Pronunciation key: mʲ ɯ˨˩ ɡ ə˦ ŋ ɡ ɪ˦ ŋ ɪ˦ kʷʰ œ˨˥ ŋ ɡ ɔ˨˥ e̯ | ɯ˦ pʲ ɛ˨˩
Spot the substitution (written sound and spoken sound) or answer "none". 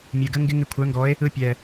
none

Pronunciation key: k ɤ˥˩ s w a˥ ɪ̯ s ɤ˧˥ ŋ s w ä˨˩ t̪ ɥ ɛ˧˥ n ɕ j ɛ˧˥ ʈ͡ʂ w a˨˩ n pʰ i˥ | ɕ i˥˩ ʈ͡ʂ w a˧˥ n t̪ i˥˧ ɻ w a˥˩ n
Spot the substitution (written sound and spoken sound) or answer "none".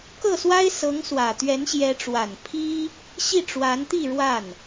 none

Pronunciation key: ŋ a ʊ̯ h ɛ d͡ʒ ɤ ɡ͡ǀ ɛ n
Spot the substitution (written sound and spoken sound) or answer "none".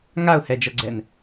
none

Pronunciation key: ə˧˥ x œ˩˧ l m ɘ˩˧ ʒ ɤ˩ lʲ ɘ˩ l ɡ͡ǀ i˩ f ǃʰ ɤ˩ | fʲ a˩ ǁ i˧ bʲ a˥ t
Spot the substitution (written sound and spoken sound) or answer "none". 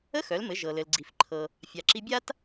lʲ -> l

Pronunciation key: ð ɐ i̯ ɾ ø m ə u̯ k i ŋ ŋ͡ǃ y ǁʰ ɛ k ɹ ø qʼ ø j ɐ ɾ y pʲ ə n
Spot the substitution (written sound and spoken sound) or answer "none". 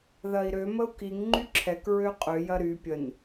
none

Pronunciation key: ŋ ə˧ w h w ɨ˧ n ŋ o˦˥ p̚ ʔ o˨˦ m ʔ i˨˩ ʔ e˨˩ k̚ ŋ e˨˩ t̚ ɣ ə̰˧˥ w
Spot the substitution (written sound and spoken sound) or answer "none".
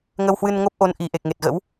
m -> n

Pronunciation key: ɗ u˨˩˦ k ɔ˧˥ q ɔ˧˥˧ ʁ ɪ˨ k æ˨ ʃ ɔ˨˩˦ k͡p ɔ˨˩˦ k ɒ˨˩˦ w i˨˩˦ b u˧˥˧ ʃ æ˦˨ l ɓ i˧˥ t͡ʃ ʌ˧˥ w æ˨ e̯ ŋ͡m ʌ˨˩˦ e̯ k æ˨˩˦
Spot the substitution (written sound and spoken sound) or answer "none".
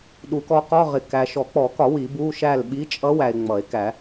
t͡ʃ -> t͡ʃʼ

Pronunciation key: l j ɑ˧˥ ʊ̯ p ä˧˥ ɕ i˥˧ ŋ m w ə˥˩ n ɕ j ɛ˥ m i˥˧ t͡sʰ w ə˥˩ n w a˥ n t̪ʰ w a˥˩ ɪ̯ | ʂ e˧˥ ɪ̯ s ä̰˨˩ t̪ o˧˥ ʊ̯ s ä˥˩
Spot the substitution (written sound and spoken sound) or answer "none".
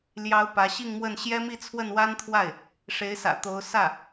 none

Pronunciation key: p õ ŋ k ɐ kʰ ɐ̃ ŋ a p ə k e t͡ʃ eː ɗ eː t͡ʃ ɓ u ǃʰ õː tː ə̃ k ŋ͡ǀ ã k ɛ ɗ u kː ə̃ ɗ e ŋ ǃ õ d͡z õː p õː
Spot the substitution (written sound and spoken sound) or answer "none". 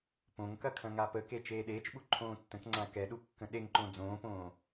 none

